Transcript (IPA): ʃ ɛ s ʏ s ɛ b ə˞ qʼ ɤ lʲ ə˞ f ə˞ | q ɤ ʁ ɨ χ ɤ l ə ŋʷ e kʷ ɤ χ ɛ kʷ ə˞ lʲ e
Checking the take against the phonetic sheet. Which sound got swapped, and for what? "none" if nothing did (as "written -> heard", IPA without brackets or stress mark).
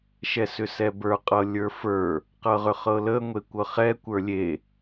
ɨ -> ʏ